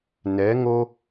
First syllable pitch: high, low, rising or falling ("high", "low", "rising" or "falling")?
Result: rising